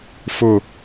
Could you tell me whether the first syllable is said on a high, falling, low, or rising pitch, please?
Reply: falling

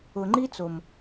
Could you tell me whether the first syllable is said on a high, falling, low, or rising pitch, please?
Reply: low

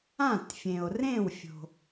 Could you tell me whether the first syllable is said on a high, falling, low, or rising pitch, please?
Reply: falling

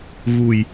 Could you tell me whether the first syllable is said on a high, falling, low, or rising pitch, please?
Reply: low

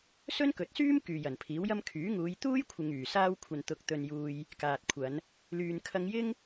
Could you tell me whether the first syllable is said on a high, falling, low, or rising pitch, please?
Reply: high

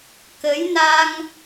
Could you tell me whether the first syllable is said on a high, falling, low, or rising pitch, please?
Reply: rising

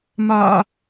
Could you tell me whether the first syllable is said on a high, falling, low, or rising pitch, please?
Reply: low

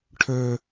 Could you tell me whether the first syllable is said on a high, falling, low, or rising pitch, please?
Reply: high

